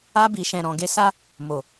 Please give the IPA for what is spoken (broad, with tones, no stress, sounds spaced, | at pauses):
a˧ b i˨ ʃ ɛ̃˨ ɾ ɔ̃˨ ɡ e˧ s a˦ | m o˨